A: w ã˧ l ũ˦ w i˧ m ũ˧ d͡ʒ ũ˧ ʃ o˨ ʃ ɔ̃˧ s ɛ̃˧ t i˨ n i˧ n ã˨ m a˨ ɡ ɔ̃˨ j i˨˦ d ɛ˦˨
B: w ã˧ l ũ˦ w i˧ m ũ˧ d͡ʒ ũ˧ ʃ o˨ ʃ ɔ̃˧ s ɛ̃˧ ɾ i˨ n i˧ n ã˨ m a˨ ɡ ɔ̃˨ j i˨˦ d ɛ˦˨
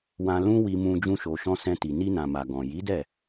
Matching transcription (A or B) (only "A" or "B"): A